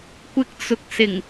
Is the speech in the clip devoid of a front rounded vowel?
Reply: yes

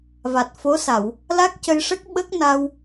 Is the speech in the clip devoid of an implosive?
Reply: no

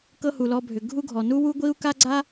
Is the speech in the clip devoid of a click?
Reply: no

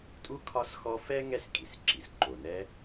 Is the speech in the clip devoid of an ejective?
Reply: no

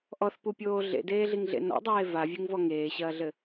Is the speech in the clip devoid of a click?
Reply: yes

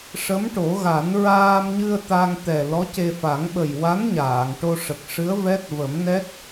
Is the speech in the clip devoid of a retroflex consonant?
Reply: no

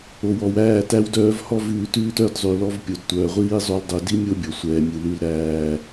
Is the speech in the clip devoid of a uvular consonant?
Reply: no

